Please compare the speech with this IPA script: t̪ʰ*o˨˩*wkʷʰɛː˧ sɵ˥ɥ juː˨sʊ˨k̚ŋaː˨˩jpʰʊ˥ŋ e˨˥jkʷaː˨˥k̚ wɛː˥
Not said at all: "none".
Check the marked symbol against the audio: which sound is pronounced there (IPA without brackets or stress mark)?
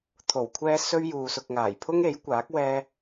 o˨˩